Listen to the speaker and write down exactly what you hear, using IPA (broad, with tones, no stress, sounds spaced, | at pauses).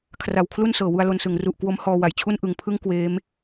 kʰ r a˨˩ w kʰ l u˥˩ n s ɤː˩˦ w u˧ a̯ l o˧ n s ɯ˩˦ ŋ r u˨˩ ʔ k w o˦˥ m h ɔː˧ w a˩˦ j t͡ɕʰ u˥˩ n ʔ ɯ˨˩ ŋ pʰ ɯ˥˩ ŋ k w eː˦˥ m